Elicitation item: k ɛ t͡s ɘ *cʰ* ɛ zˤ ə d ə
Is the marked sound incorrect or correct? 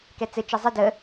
incorrect